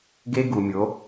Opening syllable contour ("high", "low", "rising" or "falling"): high